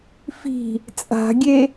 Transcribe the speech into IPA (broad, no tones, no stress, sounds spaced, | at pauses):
f i̤ | t͡sʼ a̤ ɡʲ e